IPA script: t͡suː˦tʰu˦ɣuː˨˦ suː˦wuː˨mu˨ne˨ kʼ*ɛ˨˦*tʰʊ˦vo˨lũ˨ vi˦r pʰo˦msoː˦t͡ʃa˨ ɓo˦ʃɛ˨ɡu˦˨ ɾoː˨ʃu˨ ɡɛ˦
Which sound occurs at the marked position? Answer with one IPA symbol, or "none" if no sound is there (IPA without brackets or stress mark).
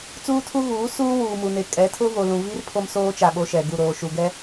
ɛ˨˦